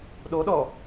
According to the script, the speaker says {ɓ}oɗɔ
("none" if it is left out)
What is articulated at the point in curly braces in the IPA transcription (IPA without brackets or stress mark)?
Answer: ɗ